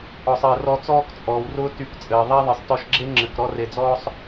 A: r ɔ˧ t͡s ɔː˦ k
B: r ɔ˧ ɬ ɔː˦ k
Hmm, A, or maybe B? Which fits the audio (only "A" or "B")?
A